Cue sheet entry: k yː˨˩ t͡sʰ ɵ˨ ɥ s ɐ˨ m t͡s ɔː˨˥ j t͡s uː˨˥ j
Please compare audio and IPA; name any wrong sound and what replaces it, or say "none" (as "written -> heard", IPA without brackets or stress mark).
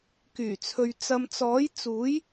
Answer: s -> t͡s